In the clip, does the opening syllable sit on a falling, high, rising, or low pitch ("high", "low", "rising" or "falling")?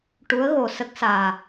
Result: rising